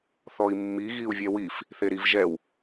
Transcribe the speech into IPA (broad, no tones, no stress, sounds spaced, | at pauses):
θ ɔ i̯ mː i ɣ i u̯ vʲ ɛ w i f | θ e ɾ i v ʒ ɛ w